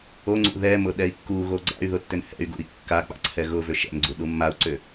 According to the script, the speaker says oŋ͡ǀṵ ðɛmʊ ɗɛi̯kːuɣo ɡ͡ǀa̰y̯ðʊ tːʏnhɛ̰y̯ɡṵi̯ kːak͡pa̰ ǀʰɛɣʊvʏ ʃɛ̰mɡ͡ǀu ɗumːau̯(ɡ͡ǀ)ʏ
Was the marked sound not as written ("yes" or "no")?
yes